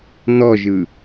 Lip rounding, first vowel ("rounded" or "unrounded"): rounded